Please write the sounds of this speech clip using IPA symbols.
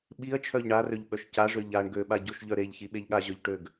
ɓ i ɐ̯ t͡ʃʰ œ ʎ ɳ a r ø ʎ ɓ œ ʃ c a ʐ ø ʎ a ɳ ɡ ø ɓ a ɟ o ʃ ʎ œ ɾ e ʎ ç i ɓ e ʎ ɠ a ʑ œ ʎ ʈ ø ɡ

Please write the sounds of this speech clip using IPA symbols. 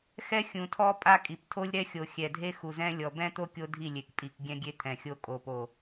x ɛ˦ xʲ ũ˨ tʰ ɔ˦ pʼ a˦ kʼ i˨ p tʰ o˦ lʲ ɾ ɛ˦ xʲ o˨ xʲ ɛ˨ dʱ e˦ x u˨ z ɛ̃˦ lʲ ɔ˨ b ɛ̃˦ t̪ o˦ kʲ o˦ dʱ i˦˨ lʲ e˨ k pʼ i˨ k ɡʲ ɛ̃˦ ɡʲ e˦ t̪ʰ ɛ̃˨ xʲ o˦ kʼ o˨ p o˨

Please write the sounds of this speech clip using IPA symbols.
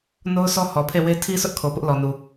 n o˦ ʊ̯ sʰ ɔ˦ h ɔ˨ pʰ e˦˨ w e˦ tʰ i˦ sʰ ʊ˦ ʔ kʰ o˨ p ʊ˦ ʔ l ɔ˨ n u˨

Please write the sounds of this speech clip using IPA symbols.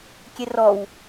kʲ e r ɔ w

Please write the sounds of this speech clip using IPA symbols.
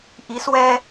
ʔ i˨˦ s w ɛ˦

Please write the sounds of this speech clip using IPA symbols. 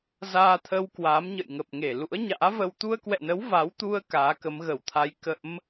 z aː˧ t̪ʰ ə˧ w k w aː˨˦ m ɲ ə̰˧˨ j ŋ ə˨˩ p̚ ŋ e˧˩ l ṵ˧˥ ə̯ ɲ a̰ː˧˥ v ə˧ w t̪ u˧ ə̯ k w ɛ̰˧˨ n ə˨˦ w v a˨˦ w t̪ u˧ ə̯ k aː˨˦ k ə˨˦ m ɣ ə˧˩ w t̪ʰ a˧ j k ə̰˧˥ m

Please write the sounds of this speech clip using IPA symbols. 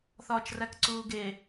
θ ɒː t͡ʃ r æ k ǀ uː ɡ e

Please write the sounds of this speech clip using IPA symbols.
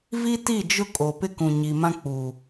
v i˦ t i˦˨ d͡ʒ ʊ˦ kʼ o˨ p ɪ˦ k ũ˨ ɲ i˨ m ã˦ k͡p uː˨

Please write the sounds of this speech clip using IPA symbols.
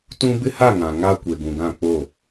t ũ˦ b ɪ˦ h a˦˨ ŋ ã˨ ŋ a˦ kʷ e˨ ɡ ũ˨ ɡ ã˦˨ k͡p o˦˨

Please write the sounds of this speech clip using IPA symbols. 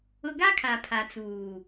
ʊ˦ ɡ a˦ kʰ a˨ pʰ a˨ t͡s uː˨

